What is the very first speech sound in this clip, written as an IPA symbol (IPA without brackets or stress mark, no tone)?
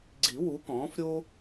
ɡ͡ǀ